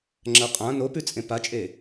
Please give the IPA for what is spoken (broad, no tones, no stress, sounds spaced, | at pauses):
ŋ͡ǁ ɐ qʼ ã n o p ʉ t͡sʼ ẽ p a t͡ʃʼ e